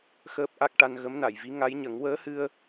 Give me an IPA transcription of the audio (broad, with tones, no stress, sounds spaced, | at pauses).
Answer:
x əː˦˥ p̚ ʔ a˦˥ k̚ ʈ a˧ n ɣ ə˧˥ m n a˨˩˨ j v i˧˥ ŋ a˧˥ j ɲ ə˨˩˦ ŋ w əː˧˥ h ɨ˧ ə̯